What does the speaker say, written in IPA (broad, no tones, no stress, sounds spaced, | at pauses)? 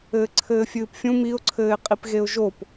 ɘː ǀʰ ɘː fʲ ɨː p fʲ ũ m i ʊ̯ ǀʰ ɘː ɪ̯ qʼ i p ɣ e ʊ̯ ʒ o p